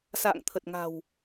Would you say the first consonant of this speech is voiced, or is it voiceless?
voiceless